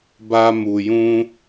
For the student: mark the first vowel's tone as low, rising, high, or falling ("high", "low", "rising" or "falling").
high